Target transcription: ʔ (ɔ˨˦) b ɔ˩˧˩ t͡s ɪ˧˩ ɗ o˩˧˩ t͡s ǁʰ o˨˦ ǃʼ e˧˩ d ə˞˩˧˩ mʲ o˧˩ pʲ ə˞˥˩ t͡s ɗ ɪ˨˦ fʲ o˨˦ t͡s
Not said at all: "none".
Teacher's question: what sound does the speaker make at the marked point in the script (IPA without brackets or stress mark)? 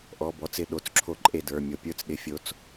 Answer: ɔ˩˧˩